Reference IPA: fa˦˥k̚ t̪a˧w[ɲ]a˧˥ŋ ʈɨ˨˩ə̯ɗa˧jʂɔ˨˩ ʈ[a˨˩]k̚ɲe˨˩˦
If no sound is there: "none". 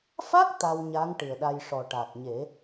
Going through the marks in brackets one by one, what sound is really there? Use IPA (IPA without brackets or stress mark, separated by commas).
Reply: ɲ, a˨˩